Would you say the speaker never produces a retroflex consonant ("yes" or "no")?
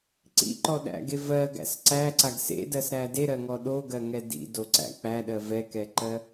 yes